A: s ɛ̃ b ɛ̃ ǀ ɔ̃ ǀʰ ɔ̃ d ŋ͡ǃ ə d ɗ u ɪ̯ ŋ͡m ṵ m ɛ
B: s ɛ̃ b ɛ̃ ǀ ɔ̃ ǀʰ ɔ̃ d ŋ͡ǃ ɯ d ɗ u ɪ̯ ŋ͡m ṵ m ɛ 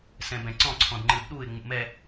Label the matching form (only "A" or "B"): B